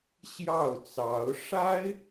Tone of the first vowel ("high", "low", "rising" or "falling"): falling